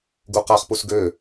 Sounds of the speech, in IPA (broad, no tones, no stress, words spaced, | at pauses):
ɡuqaχpus ɡø